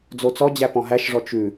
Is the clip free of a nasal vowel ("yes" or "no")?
no